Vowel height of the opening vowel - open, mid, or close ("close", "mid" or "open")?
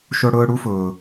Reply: mid